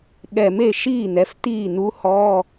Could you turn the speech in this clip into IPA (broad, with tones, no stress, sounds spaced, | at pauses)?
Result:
ɠ ɛ˨˩ m e˥˩ ʃ iː˥˩ n̪ ɛ˩˧ f t̪ iː˥˩ n̪ u˧˥ h ɔ˧˥˧